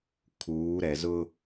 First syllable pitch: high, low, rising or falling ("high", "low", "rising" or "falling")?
rising